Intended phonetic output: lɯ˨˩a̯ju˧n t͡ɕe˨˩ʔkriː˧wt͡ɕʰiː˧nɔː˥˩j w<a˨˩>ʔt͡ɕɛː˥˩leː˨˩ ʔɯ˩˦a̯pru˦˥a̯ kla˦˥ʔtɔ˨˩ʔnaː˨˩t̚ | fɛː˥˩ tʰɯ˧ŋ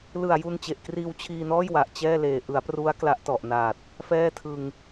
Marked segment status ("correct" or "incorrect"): correct